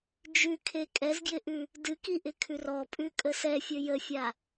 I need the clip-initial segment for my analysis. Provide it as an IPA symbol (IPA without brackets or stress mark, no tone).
d͡ʒ